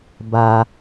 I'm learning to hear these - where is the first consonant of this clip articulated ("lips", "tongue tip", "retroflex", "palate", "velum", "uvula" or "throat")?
lips